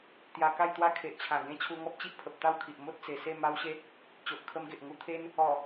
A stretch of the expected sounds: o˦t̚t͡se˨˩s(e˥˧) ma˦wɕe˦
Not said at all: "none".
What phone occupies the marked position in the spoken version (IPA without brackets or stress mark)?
e˥˧